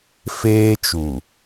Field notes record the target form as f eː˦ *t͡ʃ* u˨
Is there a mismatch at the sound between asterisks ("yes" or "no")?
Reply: no